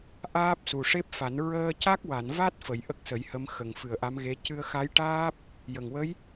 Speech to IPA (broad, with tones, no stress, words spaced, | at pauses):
ʔaː˦˥p̚su˨˩ʂe˦˥p̚fa˨˩˦n ɹəː˧ca˦˥k̚wa˨˩˨nva˦˥t̚ fə˨˩˦j ʔə˦˥k̚sə˨˩˦jhə˧˥m xə˨˩ŋfɨ˨˩ə̯ ʔa˧˥mɣe˧˥ cɨ˧ə̯ xa˧˥jʈaː˦˥p̚ | jə˨˩ŋ wə˧˥j